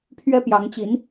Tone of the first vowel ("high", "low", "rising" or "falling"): high